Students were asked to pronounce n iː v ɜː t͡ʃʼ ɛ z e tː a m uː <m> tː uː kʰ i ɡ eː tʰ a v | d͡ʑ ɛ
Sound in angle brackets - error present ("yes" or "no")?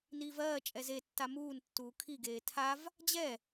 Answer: yes